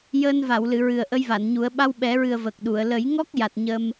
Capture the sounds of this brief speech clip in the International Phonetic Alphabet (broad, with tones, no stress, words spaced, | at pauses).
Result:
jəː˧nva˨˩˨wlɨ˨˩˨ ɹɨ˨˩ə̯ʔə˧jva˨˩˨nɲu˨˩˦ə̯ ɓa˧wɓɛ˨˩˦ɹɨ˨˩ə̯ və˨˩k̚ɗu˨˩˨ə̯ lə˨˩˦jŋɔ˦˥k̚ja˨˩t̚ ɲə˧m